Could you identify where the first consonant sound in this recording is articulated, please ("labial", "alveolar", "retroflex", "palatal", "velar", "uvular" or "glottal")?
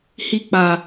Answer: glottal